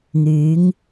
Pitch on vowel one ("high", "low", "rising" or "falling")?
rising